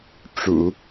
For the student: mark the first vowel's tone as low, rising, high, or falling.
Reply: low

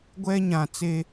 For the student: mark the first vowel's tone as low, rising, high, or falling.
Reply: high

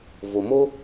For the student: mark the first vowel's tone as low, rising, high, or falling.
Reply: low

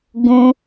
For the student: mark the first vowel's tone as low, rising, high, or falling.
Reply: high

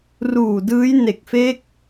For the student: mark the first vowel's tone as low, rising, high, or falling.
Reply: low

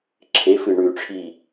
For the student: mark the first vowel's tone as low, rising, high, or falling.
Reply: rising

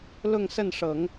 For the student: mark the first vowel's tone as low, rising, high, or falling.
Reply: falling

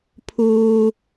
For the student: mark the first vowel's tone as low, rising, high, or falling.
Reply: high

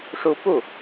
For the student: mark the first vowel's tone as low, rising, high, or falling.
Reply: rising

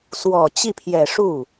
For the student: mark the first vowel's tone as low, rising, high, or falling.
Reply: low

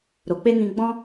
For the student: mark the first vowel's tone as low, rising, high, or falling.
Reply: low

